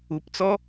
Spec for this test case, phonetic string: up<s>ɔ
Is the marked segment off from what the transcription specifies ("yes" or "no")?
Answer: yes